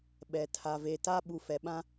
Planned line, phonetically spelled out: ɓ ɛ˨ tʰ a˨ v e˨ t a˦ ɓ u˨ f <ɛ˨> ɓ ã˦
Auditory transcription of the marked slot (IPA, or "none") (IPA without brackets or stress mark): ɛ˨